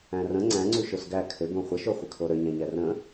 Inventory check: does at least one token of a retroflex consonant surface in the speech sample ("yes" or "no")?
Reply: no